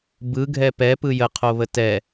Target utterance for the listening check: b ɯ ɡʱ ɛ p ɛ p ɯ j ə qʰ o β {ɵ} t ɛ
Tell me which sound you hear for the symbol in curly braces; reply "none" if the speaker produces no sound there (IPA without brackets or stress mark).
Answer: ə